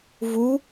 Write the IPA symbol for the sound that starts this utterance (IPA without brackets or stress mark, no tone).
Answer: v